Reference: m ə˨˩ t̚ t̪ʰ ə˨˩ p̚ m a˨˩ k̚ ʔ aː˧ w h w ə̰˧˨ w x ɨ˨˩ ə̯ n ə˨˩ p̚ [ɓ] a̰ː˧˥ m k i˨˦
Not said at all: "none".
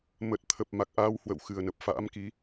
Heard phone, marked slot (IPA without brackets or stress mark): f